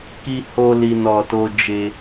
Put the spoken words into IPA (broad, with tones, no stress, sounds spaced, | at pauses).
k i˧ h o˦ l i˧ n ɔ˧ t o˦ d͡ʒ e˧